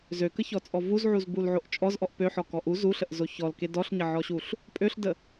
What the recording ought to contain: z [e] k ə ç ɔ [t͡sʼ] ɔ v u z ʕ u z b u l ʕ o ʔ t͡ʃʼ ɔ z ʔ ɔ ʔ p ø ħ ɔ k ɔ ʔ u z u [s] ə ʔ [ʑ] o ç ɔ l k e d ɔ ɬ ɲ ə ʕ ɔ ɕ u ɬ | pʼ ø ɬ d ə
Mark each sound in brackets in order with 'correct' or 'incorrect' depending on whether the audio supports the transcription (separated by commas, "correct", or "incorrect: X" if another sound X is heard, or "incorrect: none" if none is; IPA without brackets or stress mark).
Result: incorrect: ø, correct, incorrect: ɬ, incorrect: z